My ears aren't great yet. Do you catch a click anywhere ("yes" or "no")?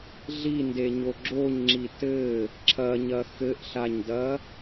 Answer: yes